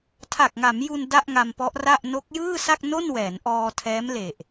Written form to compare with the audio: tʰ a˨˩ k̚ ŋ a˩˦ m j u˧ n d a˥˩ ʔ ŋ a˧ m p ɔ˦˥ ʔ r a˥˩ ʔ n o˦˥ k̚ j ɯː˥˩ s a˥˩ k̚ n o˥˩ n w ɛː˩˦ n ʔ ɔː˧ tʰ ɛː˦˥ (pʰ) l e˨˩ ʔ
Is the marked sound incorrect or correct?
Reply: incorrect